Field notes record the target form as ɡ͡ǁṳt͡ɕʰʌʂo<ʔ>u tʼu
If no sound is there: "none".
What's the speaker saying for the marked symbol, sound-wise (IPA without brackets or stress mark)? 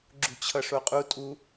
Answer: qʼ